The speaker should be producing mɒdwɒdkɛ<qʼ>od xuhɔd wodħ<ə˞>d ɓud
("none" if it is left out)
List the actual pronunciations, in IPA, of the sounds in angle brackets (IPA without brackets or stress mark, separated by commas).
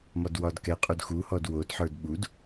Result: qʼ, ə˞